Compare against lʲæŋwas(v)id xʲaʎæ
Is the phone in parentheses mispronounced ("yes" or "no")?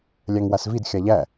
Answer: no